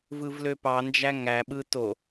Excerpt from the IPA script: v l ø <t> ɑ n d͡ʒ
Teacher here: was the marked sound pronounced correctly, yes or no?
no